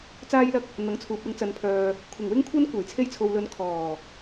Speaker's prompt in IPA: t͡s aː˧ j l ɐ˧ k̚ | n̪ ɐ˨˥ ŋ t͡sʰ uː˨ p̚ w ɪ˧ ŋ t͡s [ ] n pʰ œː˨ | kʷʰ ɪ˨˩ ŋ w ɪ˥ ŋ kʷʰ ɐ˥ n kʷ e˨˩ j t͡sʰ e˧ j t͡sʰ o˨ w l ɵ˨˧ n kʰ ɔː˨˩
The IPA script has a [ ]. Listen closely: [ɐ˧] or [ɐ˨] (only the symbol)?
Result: ɐ˨